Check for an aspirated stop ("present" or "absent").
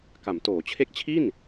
present